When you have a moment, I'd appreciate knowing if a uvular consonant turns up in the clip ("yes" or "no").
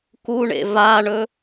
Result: no